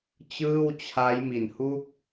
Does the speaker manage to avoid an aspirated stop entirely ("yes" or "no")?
no